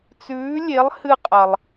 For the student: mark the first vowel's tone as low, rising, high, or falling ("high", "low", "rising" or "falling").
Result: rising